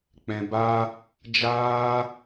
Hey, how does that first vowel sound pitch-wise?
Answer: low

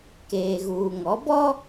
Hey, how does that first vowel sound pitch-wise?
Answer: low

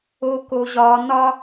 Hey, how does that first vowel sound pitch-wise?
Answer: high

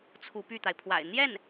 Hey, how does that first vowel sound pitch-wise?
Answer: rising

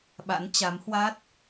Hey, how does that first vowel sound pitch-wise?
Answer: rising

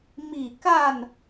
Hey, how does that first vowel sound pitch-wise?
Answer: falling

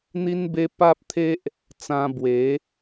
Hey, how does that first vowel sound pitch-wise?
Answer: high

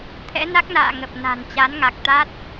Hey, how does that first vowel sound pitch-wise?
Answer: rising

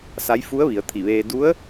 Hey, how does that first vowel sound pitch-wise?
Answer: rising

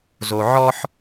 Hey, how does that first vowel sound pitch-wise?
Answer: low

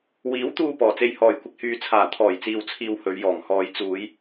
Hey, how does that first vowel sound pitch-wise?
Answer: rising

